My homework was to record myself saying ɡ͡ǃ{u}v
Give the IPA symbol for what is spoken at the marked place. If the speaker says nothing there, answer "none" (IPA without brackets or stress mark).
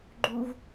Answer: u